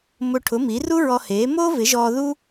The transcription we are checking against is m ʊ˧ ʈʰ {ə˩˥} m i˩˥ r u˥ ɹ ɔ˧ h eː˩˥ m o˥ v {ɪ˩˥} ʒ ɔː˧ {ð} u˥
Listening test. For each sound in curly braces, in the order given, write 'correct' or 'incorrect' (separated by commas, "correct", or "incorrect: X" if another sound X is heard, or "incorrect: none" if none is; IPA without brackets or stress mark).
incorrect: ʊ˩˥, correct, correct